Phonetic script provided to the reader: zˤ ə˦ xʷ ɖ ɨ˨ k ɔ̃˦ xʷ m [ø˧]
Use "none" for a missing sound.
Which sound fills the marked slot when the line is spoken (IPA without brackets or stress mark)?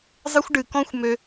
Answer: ø˧